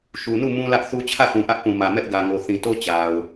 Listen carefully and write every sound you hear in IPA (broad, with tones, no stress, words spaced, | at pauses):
ʃu˨nu˦˨ mũ˦lä˦ʔθu˦ t͡ɕʰä˦˨θũ˨ʔä˦ʔ pũ˨mä˨mɛ˦ʔ ɡä˨ŋo˨ θĩ˨to˦ t͡ɕa˨ʊ̯